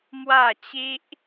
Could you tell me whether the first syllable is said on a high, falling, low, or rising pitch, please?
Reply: falling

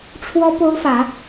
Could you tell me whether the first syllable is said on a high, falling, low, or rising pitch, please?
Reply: high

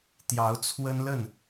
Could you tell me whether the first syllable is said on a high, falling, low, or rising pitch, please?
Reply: rising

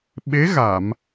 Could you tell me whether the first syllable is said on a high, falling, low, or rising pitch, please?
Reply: rising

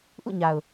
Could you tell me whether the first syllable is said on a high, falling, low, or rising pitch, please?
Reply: falling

